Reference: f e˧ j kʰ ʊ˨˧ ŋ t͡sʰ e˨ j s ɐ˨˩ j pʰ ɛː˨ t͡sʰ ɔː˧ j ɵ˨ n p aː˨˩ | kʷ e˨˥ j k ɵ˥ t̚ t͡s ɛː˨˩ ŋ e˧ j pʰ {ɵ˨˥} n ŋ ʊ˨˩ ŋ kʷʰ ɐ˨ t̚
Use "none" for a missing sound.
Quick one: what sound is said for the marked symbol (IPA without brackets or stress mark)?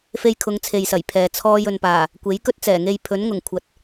ɵ˨˥